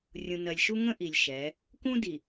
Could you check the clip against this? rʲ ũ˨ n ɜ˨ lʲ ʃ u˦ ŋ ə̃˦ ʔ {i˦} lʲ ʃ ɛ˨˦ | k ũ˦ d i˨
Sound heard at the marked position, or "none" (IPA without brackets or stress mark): i˨